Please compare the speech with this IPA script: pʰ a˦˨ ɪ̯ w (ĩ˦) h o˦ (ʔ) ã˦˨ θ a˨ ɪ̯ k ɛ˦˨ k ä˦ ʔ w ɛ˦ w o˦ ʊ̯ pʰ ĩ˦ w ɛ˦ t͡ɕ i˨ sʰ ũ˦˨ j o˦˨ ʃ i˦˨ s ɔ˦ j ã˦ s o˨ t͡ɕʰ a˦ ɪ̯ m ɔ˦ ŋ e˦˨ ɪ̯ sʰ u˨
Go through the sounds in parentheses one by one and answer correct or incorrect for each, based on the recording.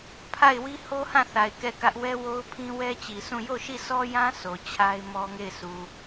incorrect, incorrect

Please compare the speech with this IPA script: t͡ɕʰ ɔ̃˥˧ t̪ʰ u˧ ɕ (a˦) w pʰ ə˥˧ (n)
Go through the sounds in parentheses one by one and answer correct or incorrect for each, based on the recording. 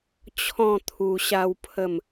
correct, incorrect

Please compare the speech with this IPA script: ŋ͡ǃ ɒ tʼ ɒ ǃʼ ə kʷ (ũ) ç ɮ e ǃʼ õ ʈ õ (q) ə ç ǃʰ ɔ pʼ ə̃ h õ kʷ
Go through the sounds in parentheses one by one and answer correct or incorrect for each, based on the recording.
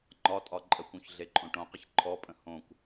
correct, correct

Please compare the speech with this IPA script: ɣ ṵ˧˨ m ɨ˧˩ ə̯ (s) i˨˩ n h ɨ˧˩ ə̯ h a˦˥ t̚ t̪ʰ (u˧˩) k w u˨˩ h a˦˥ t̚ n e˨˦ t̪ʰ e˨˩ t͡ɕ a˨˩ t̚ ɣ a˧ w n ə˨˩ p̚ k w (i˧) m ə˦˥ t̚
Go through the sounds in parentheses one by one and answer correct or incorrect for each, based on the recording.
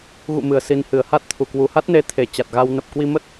correct, correct, correct

